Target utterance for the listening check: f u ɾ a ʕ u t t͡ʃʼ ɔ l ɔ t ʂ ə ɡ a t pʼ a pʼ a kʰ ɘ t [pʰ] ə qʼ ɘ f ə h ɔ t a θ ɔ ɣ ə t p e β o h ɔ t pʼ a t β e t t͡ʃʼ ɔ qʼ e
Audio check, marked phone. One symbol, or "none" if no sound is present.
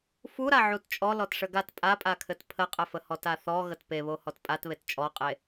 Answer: pʰ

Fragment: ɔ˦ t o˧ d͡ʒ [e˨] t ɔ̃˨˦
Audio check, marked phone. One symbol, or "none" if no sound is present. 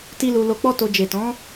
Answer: e˨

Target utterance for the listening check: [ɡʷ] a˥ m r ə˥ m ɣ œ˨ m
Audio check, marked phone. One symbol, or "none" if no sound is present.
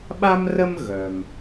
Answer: ɓ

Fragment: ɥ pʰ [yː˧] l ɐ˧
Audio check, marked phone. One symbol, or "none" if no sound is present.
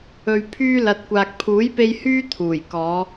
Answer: yː˥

